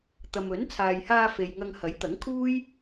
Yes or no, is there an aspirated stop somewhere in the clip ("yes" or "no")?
yes